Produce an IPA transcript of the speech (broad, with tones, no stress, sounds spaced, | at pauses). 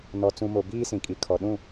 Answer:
n ɔ˨ t͡s ũ˨ m o˨ b iː˦ s ĩ˨ kʼ i˨ kʰ ɔ˨ ɗ ũ˦˨